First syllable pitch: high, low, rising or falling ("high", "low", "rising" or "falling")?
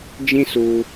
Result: high